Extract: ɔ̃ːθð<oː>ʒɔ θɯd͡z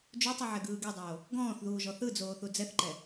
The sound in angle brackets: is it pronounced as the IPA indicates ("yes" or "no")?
no